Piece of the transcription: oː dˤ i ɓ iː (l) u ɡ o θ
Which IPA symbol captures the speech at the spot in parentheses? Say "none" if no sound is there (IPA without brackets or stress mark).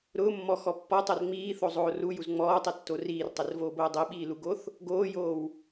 l